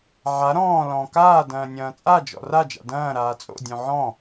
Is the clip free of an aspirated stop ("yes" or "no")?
yes